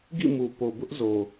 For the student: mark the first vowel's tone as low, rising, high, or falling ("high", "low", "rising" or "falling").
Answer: falling